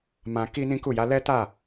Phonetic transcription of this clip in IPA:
m ã˧ k i˦ n ĩ˦ k u˦˨ j a˨˦ l ɛ˦ t a˦˨

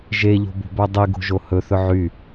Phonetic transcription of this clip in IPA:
ʒ e ʎ o̤ b o̤ b œ dˤ i ɡ o̤ ʒ o h ɵ θ ɵ ʕ y

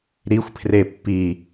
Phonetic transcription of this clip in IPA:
ɾ i xʷ pʰ r e pː i

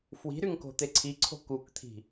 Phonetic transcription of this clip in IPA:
f w i̤ ɾ y ŋ k o̤ t̪ e ǀʰ i ǀʰ o̤ k u k t̪ʰ i̤

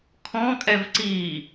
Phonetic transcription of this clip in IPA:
kʰ ɔ̃ kʼ ɛ v ǀ i

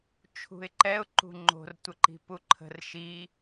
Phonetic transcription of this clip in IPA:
t͡ʃʰ ṳ ɪ̯ ǃ ɛ ʊ̯ ǃ ṳ ŋ͡ǃ o̤ r tʷ ə ǃ i̤ p u ǃʰ ə̤ r ʃ i

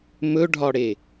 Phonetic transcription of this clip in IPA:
m ɵ ɖʱ ɒ ɽ e

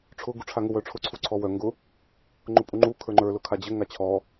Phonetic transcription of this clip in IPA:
ʈ͡ʂʰ ʊ ɡ u ʈ͡ʂʰ a ŋ ʊ w œ ʈ͡ʂʰ ʊ ǀʰ u ǀʰ ɔ w œ ŋ ɡ ʊ | ŋ͡ǃ ʊ pʼ u ŋ͡ǃ u kʰ ə˞ ŋ͡ǃ ə˞ l ʊ kʰ a d͡ʑ ɘ ŋ a t͡ɕʰ ɔ

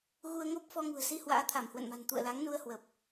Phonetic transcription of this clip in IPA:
ɣ u˧ ə̯ ŋ o˦˥ p̚ f ɔ˧ ŋ ṳ˨˩ ə̯ s i˧ h w a̰ː˧˥ t̪ʰ a˧˩ m h w ə̰˧˨ n m a̤˨˩ n t̪ ṵ˧˨ ə̯ l a˨˦ ŋ n u˧ ə̯ h w ə˨˩ p̚

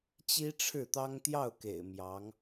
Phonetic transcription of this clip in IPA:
t͡ɕ i˥ ʈ͡ʂʰ ɻ̩˥˩ t̪ ɑ˥ ŋ t̪ j ɑ˥˩ ʊ̯ k ḛ˨˩ ɪ̯ m j ɑ˧˥ ŋ

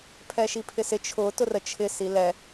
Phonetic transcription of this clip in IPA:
pʰ ɛ ʃ i pʰ ɪ s ɪ t͡ʃʰ ʊ t ʊ r ə t͡ʃʰ ɪ s i l ɛ

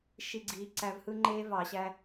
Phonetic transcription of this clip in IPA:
ʃ i˦˨ ɡ͡ǀ iː˧ ǀ æ˧ v h ɯ˦ ŋ͡ǃ eː˦ v ɑ˨ ɕ æ˦

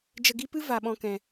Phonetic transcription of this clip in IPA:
d͡ʒ ə˧ ɡ i˦ p ɨ˦ v a˨ ɓ ɔ̃˧ k ɛ̃˨

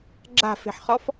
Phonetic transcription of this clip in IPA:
ɡ͡ǁ a̤ f e̤ ħ χ ɔ f

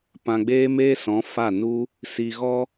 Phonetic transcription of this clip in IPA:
p ã˧ ɡ͡b eː˦ m eː˦ s ɔ̃˨˦ f a˦˨ n u˦ | s i˧ ɣ ɔ˦

